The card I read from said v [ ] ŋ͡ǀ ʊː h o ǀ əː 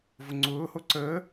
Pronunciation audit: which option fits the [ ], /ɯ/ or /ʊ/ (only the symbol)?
ʊ